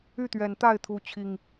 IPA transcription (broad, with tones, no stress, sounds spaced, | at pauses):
y˥˨ t̪ ɥ ɛ˨˩ n t̪ a˥˨ ɪ̯ t̪ʰ u˨˦ t͡ɕʰ i˨˩ ŋ